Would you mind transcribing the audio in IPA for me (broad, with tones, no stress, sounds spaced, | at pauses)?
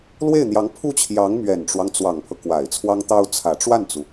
l w e˥˩ ɪ̯ n̪ j ɑ˧˥ ŋ pʰ u˥˩ t͡ɕʰ j ɑ˧˥ ŋ m ɥ ɛ˨˩ n ʈ͡ʂ w ɑ˦ ŋ t͡s w ɑ˨˩ ŋ pʰ ɤ˦ k w a˨˩ ɪ̯ t͡sʰ w ɑ˥ ŋ t̪ ɑ˥ ʊ̯ t͡sʰ ä˨˩ ʈ͡ʂ w a˥˩ n t͡s u˩